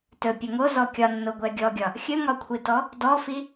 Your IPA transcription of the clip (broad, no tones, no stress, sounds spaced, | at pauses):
t ɵ pʲ ɵ ŋ o z ɔ kʲ ɒ nː o ɡʷ ɛ ɡʲ ɔ ɡʲ ɒ | xʲ ɵ ŋ ɒ kʷʰ i t ɔ | d ɔ f i